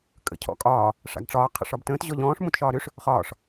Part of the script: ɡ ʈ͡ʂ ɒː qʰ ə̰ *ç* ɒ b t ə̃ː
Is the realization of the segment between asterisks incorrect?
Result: yes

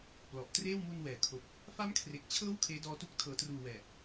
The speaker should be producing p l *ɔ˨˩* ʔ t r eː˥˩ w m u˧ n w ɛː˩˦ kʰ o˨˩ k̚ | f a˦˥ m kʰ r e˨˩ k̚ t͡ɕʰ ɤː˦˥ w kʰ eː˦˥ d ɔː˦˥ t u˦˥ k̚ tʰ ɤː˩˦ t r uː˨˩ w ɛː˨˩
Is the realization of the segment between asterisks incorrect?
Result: no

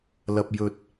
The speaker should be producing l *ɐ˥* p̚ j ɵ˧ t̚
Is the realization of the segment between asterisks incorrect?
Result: yes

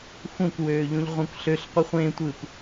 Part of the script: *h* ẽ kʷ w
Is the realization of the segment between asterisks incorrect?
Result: yes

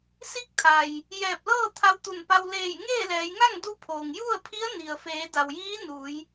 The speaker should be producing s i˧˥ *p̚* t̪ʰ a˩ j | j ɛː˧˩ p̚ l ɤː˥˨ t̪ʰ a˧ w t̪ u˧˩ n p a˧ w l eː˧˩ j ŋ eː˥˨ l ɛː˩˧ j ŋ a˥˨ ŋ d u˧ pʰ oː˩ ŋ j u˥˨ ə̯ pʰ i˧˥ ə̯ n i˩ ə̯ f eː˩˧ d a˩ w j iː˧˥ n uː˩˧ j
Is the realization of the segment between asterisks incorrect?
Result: yes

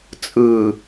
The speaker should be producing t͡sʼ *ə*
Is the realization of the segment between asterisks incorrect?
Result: yes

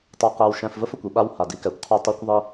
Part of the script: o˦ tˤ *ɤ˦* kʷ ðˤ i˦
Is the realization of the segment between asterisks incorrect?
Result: no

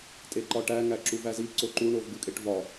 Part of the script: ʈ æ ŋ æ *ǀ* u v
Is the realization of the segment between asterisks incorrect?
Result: yes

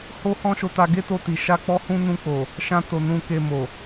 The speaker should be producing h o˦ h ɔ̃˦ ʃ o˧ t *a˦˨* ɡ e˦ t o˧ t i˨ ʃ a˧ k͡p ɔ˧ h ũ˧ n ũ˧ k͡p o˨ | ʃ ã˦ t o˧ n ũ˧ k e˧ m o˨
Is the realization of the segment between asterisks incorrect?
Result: yes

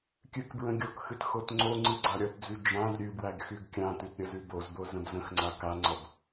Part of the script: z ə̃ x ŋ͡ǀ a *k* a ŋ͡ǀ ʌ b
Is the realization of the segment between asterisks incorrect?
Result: no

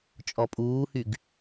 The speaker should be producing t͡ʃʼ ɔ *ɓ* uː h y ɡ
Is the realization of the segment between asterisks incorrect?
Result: yes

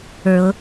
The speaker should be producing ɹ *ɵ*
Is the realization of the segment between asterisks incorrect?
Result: yes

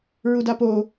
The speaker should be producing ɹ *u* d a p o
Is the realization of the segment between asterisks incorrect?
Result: no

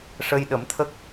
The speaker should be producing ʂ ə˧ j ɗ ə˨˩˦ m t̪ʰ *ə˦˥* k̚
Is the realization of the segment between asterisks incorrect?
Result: no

